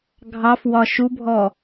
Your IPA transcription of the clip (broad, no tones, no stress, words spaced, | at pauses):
ɡʱɑfwɒ ʃubʱɔ